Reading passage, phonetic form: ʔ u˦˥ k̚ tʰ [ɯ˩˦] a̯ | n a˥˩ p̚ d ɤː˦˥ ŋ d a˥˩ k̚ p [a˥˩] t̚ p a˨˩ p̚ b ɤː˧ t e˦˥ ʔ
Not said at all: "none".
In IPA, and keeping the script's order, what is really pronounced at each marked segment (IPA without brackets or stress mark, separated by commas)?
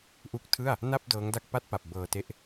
ɯ˥˩, a˥˩